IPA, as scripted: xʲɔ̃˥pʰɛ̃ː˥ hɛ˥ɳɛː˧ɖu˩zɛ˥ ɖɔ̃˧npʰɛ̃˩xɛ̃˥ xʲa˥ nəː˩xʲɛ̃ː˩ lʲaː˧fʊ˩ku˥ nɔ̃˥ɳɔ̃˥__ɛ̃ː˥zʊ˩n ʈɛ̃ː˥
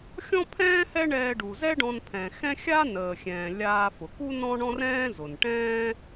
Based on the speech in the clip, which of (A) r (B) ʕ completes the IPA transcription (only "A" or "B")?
A